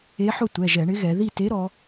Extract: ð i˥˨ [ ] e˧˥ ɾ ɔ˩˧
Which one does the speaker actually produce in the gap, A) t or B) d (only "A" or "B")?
A